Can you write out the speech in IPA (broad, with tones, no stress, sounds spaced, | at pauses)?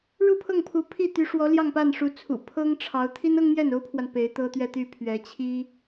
ɻ u˥˧ pʰ ɤ˥˩ ŋ pʰ u˧˥ pʰ i˥˩ t̪ y˧˥ ʂ w ɔ˧˥ l j ɑ˥˧ ŋ p a˥˩ n ʂ u˧˥ t͡sʰ ṵ˨˩ pʰ ɤ˥ ŋ ʈ͡ʂʰ ɑ˧˥ ʊ̯ t̪ʰ i˥ n ɤ˥ ŋ n̪ j ɛ˥˩ n o˥ ʊ̯ pʰ w a˨ n p e˧˥ ɪ̯ t̪ ɤ˥ t̪ ɥ ɛ˥˧ t̪ y˥˩ pʰ ɥ ɛ˧˥ t͡ɕʰ i˥